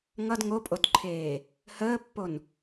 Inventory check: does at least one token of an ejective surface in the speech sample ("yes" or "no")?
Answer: yes